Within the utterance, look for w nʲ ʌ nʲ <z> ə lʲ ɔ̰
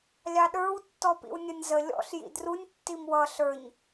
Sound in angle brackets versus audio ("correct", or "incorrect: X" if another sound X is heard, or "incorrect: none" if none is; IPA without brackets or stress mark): correct